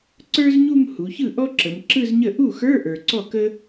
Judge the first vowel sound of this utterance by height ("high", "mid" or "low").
mid